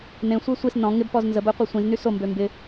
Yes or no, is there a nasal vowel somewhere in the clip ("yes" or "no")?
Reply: yes